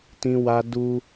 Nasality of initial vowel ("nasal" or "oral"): nasal